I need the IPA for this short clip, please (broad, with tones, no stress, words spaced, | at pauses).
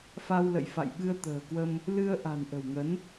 fa˧wlə̰˧˨jfa̰˧˨jɓɨ˧ə̯ t̪ə̤ː˨˩kwə˧m | lɨ˧ə̯ʔa̤˨˩n ʔə̤˨˩wŋə˨˦n